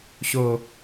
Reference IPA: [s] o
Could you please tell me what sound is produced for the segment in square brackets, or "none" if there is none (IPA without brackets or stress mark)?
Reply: ɕ